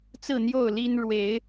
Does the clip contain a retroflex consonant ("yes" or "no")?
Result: yes